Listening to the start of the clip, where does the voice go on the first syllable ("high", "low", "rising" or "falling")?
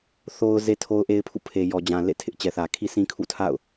high